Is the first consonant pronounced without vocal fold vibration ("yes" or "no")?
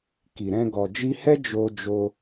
yes